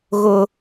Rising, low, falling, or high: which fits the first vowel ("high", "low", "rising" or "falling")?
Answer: high